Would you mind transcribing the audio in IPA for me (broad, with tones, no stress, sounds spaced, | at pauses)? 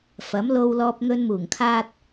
f ɐ˨˥ m l o˧ w l ɔː˧ p̚ ŋ ɵ˧ n m uː˨˩ ŋ kʰ aː˥ t̚